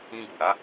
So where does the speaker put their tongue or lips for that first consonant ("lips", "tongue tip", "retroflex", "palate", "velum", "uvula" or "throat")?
velum